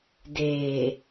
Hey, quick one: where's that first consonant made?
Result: tongue tip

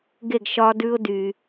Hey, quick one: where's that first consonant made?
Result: velum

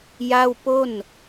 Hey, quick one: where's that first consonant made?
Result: palate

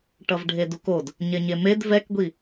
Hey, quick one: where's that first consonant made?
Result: retroflex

